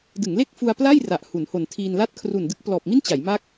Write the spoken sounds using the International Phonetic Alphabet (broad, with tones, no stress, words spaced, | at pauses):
dɯ˩˦ŋle˥˩k̚fu˧a̯ pla˥˩j ra˨˩ʔhu˩˦nho˨˩n tʰiː˧nla˥˩t̚ kʰru˨˩ndɯ˦˥k̚plɔː˨˩p̚mi˥˩n t͡ɕa˩˦jma˦˥k̚